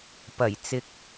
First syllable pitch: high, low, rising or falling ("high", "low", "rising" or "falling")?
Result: low